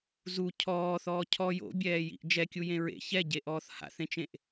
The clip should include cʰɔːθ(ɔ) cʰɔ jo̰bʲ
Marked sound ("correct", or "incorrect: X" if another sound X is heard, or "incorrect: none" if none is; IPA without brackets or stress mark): incorrect: ɔː